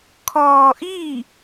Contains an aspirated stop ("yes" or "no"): yes